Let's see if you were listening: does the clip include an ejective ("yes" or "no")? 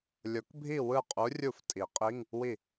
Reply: yes